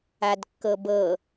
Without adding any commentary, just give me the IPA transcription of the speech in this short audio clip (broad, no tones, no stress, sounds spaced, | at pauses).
a d kː ɤ b ɤ